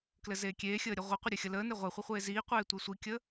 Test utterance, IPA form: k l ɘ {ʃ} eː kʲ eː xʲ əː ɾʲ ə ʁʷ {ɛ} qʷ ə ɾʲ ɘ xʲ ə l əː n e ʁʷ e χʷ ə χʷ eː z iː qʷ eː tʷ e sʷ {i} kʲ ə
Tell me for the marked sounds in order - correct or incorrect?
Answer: incorrect, incorrect, correct

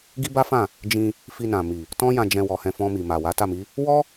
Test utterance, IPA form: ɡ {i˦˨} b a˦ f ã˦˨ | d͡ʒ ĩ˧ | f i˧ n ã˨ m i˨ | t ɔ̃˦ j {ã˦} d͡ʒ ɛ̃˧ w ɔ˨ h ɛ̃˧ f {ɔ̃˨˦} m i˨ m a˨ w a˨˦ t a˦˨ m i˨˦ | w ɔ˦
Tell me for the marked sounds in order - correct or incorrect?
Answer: incorrect, incorrect, incorrect

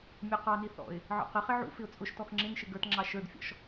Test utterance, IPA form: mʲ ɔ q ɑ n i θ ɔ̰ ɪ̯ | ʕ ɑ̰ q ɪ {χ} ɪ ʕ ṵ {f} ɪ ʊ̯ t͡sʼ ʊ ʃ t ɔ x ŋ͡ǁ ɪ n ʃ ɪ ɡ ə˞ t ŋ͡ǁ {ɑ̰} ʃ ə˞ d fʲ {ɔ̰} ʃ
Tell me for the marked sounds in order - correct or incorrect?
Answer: correct, correct, incorrect, correct

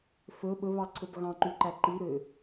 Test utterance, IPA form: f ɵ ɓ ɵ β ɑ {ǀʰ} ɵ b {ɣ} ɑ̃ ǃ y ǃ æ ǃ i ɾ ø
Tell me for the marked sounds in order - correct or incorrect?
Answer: correct, correct

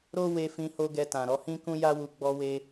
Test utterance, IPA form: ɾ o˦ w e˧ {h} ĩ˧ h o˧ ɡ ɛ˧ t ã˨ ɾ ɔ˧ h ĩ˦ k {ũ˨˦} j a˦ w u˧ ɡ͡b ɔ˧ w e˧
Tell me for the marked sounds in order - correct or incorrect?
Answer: incorrect, incorrect

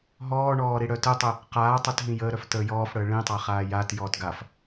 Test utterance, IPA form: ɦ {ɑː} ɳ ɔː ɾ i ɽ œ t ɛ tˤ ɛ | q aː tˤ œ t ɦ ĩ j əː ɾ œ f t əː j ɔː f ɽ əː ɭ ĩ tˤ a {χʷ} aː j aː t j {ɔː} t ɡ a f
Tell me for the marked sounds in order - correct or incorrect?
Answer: incorrect, incorrect, correct

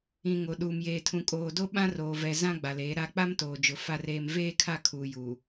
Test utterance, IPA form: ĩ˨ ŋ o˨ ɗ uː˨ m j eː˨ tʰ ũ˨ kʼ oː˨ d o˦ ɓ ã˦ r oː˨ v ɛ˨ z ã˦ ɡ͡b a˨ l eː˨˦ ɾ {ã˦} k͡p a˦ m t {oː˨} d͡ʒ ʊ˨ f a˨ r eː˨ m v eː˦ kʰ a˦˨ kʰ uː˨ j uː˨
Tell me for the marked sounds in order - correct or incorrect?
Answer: incorrect, correct

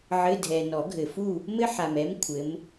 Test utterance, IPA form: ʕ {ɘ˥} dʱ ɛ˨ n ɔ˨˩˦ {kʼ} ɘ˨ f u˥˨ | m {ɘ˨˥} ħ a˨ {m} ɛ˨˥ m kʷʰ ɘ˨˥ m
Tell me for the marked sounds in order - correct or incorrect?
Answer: incorrect, incorrect, incorrect, correct

